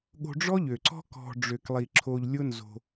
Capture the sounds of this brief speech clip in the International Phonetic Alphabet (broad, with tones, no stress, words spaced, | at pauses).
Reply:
ɠo̤˧ɖ͡ʐɔ˦ʎø˨ǀɔ̤˦ kɔ̤˨ ɖ͡ʐø˨klˠi˨ ǁʰo˧ʎlʲʊ˦nzo̤˧